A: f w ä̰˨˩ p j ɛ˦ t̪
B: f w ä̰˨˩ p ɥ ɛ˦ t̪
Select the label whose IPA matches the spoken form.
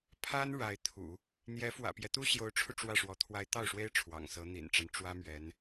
A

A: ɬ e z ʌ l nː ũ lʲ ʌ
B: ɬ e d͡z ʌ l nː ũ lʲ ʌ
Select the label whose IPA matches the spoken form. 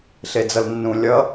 B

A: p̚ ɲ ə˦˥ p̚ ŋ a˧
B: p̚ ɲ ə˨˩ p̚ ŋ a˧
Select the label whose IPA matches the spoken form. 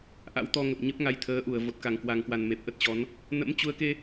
A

